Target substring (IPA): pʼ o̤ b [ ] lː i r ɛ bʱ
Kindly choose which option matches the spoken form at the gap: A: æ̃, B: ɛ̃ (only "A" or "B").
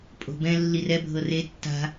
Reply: B